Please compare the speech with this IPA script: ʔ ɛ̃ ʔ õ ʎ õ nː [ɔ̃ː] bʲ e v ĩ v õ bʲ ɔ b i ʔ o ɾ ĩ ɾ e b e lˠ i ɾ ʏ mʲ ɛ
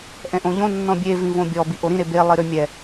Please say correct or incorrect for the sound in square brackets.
incorrect